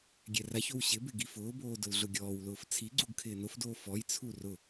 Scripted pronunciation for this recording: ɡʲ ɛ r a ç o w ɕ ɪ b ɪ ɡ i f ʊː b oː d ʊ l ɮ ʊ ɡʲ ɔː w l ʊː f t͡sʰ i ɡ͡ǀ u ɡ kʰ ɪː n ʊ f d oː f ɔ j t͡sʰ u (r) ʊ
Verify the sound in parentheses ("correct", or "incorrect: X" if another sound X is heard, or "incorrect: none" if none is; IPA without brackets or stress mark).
correct